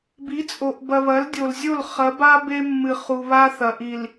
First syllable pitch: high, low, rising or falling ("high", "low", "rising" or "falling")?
rising